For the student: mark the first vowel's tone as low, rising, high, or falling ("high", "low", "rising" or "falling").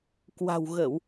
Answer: low